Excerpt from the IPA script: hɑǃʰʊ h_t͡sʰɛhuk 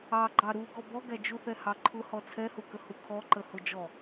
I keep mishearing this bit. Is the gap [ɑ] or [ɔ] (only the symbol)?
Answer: ɔ